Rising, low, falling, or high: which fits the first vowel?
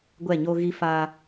falling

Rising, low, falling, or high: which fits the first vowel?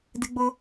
high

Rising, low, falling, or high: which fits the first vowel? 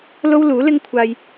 high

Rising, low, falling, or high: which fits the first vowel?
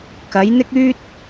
rising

